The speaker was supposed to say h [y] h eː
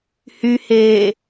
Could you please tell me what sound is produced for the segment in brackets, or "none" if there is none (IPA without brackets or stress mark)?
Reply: y